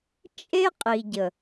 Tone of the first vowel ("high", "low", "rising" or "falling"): high